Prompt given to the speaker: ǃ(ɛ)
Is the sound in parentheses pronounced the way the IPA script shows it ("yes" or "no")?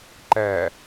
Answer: no